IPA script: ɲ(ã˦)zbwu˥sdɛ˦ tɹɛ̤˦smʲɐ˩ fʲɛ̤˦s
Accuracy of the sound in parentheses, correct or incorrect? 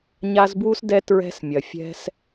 incorrect